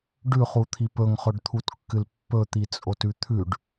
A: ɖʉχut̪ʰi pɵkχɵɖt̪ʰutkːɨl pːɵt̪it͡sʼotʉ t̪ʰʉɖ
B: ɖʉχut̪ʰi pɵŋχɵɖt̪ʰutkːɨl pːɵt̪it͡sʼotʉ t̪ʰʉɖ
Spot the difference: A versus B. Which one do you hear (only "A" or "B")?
B